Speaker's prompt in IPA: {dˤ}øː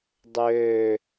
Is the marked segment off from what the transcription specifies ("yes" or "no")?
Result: no